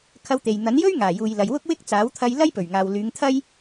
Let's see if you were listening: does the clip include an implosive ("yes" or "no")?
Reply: no